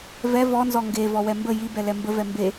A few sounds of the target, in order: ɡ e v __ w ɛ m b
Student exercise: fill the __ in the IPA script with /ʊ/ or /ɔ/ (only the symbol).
ɔ